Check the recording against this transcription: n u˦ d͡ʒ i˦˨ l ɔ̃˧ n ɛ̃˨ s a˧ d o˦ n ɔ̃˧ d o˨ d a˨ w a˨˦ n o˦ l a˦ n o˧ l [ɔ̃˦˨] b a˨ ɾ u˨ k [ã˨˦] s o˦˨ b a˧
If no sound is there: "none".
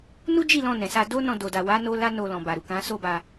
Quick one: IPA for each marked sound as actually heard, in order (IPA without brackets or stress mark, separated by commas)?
ɔ̃˨, ã˨˦